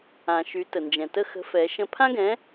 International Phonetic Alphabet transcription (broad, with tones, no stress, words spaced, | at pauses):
ã˩ʃy˩˧ tə˩nd͡ʒɛ̃˩tə˦˨ xə̤˨˥fɛ˩˧ʃə̃˦˨ pʰã˥ɡɛ̃˨˥